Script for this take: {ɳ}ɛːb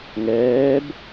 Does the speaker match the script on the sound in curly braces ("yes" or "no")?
no